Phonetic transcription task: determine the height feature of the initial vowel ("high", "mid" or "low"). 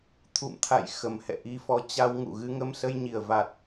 high